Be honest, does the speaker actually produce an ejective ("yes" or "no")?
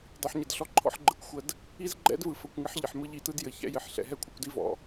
no